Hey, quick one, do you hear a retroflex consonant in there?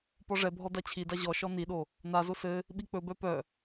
yes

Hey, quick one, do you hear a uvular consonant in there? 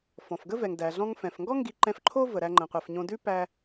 yes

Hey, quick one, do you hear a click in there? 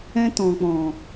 no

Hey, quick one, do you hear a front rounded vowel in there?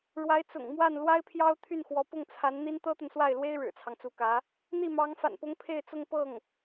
yes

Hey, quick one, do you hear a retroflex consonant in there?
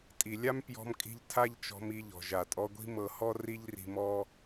no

